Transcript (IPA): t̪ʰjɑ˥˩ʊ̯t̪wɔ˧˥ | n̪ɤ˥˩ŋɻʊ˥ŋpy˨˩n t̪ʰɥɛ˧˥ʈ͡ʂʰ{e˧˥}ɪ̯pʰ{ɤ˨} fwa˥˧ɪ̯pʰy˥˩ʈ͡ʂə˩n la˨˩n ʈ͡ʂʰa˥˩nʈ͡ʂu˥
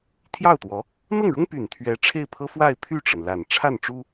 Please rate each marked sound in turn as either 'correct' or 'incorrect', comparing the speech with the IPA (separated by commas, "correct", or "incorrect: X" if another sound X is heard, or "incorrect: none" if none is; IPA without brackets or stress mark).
incorrect: e˥˩, incorrect: ɤ˥